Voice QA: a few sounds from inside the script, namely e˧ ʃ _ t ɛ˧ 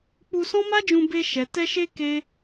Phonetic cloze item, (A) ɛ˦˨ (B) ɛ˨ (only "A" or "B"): B